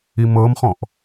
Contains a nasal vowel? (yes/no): yes